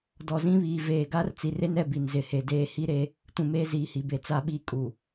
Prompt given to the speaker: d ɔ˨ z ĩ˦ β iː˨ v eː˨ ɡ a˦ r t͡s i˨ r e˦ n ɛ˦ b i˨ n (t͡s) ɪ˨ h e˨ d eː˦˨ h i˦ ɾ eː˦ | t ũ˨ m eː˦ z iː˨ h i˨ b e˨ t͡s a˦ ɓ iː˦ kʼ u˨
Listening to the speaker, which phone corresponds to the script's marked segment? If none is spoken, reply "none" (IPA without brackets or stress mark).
z